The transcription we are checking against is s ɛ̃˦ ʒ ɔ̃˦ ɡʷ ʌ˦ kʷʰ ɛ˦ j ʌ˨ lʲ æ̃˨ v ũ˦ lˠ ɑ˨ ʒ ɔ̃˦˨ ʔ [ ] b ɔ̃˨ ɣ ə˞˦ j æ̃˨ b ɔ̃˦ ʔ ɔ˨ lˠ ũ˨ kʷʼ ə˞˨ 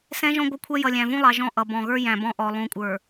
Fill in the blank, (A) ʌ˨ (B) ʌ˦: A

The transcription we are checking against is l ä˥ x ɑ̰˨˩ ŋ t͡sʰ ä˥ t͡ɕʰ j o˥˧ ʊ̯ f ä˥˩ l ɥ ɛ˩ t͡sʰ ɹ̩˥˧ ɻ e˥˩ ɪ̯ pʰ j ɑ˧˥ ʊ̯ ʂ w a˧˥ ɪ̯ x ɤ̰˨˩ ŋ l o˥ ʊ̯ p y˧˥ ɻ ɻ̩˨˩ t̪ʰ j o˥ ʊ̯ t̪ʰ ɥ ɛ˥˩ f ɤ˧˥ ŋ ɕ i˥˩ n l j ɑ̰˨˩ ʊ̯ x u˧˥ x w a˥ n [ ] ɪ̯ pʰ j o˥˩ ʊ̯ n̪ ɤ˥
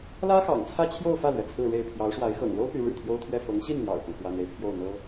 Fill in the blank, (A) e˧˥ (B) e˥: B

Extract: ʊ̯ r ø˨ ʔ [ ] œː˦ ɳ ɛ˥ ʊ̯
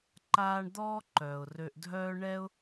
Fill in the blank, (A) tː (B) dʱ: B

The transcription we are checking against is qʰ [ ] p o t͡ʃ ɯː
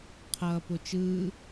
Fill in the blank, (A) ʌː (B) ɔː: A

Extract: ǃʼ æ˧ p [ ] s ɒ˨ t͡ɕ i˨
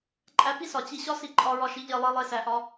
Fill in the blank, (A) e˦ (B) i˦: B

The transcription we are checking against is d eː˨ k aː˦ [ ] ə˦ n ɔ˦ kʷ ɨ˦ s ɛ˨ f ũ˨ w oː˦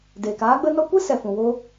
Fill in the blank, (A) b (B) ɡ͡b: B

